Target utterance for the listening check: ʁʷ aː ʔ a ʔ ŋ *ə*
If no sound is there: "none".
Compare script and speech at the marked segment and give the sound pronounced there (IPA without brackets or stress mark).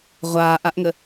ə